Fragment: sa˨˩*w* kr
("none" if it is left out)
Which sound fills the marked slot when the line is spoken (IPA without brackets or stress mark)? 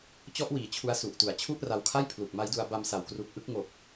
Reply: w